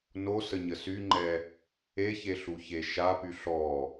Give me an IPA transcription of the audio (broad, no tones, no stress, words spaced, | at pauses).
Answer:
nosəɲə syŋ͡ǃɛ | eçeɬuçe ʃapy ɬɔ